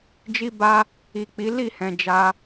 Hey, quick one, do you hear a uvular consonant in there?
no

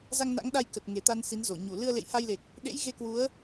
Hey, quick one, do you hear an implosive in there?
yes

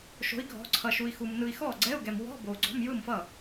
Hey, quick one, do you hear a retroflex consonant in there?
no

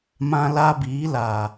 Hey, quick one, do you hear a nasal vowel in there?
yes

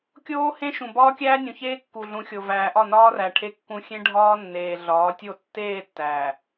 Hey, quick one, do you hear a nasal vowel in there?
yes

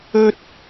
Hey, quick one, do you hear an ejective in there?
no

